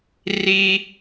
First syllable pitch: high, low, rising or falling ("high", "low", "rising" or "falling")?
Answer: high